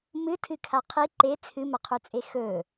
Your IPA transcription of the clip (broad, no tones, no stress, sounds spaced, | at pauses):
m ɨ tʰ ɨ kʰ a qʰ i ǃ e t͡sʰ ɨ m ɐ qʰ u t͡sʼ e x ɵ